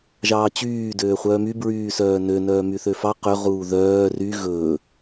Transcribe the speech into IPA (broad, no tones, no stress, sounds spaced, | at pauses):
ʒ ɑː t͡ɕ yː d øː χʷ œː m y b ɹ yː s œː n ø n œː m y θ ø f ɑ q ø ʁ uː ð œː r y ɣ ɵː